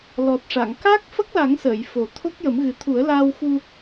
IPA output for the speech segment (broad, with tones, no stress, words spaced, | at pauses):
lɔ˨˩t̚ʂa˨˩˨ŋ ka˦˥k̚fə˦˥k̚la˨˩˦ŋ səː˨˩˨j fo˨˩t̪ʰo˦˥k̚ jə˨˩˦mɣɨ˨˩t̪ʰu˨˩˦ə̯ laː˧wxu˧